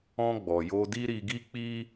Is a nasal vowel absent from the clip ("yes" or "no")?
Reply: no